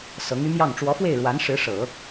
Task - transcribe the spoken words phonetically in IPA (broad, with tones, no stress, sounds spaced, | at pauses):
s ɤ˧˥ ŋ y˧˥ m j ɑ˥˩ ŋ ʈ͡ʂ w ɔ˧˥ f w e˥˩ ɪ̯ ɻ w a˧˥ n ʂ ɻ̩˧˥ ʂ ɤ˨˩˦